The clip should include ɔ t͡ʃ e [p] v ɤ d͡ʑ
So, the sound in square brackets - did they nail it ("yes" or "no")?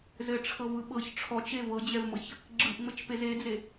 no